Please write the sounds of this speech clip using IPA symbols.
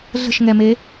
ɮ ə̤ ʃ ŋ ɛ m e

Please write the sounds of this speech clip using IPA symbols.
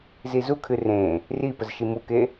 z i z u kʰ ɨ r ẽ | r i p ə z ʃ i m u k e

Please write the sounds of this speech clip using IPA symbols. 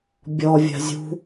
bʲ ɔ vʲ a̤ zʲ ṳ

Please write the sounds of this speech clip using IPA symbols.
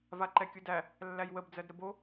v a ǃ ɛ kʲ u d æ | lː æ j w ə b d͡z ɜ d ɾ ə b o

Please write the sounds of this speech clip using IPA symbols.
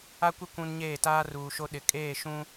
a˦ kʷ ɪ˦ kʷ ũ˦ n ɲ eː˦˨ t aː˦ r uː˨ ʃ o˦ ɗ ɪ˨ kʼ eː˦˨ ʃ ũ˦

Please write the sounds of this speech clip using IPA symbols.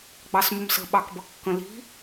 ɡ͡b ɑ s m ʊ m s ə̤ ɓ ɑ k b ʌ kː ə̃ l i̤

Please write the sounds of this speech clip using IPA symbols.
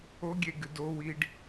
o ɡʲ e ɡ ɨ d o w i ɖ

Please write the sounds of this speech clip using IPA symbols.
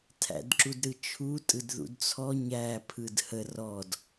tʰ æ̰ d ǁ u d ɾ ɯ t͡ʃʰ u tʼ ɯ d ð ṵ d t͡sʰ ɔ ɲ æ pʰ ɯ d h ə r ɔ d

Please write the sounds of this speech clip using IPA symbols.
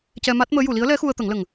c ɛ˧ m a˦˥ t̚ m əː˧˥ j u˨˩˨ l i˧˥ ə̯ l ɛ˧˥ x u˧ ə̯ t̪ ə˨˩˦ ŋ l ə˨˩ ŋ

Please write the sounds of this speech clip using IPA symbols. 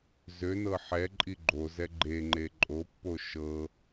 z ø n ɤ ħ ɛ ǃʼ i ɡ͡ǃ o z ɛ ɡ͡ǃ e ŋ͡ǃ e ǃʼ o pː o ʃ ɤ

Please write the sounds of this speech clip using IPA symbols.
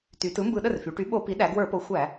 t y˩˧ t ɯ˩˥ m b ɯ˧˩˧ ɗ ə˥˩ r f y˩˧ ʈ y˩˥ ɓ o˧˩˧ p i˩˥ ɗ æ˩˧ ɡ w ə˞˧˩˧ p o˩˥ xʷ æ˧˩˧

